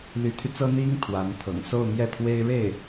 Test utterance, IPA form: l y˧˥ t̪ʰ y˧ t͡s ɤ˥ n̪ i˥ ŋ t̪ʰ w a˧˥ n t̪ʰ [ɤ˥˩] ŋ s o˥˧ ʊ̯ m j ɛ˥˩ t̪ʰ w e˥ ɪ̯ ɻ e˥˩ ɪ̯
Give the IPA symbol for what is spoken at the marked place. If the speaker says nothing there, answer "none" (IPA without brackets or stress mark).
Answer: ɤ̰˨˩